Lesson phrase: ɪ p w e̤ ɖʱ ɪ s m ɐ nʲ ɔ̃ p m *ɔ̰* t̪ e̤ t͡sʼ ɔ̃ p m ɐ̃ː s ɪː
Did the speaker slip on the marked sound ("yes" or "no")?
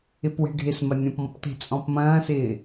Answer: no